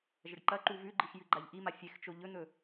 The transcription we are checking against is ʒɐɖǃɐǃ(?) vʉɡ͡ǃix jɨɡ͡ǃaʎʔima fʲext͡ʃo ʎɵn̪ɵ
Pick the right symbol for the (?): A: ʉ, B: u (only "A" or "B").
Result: B